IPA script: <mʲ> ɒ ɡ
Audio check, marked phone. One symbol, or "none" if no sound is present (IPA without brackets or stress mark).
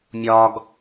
mʲ